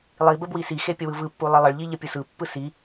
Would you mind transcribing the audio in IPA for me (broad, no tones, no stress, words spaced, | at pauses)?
lˠibə bwisixe pʲəwɯvɯpːu lˠilˠəɭʎi ʎəpʲɯsɯpːɯ si